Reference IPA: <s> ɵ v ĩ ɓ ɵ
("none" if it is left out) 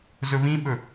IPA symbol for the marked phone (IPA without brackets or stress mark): z